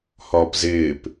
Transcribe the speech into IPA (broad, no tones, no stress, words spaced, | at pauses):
hɒːpzɪːp